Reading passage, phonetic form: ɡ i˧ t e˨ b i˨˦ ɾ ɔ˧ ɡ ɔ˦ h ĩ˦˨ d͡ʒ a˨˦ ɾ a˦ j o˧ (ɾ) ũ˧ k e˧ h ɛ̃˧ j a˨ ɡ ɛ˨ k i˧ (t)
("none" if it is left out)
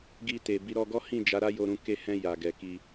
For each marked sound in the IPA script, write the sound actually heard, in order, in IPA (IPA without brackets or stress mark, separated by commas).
ɾ, none